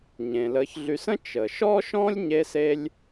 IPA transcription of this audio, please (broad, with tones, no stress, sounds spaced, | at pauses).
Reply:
ɲ ẽ˩ l əː˨ ç ɮ y˨ s ə̃˥ t͡ʃ ə˩ ʃ ɔ˥ ʃ ɔ̃˥ lʲ ɲ e˥ s e˥ lʲ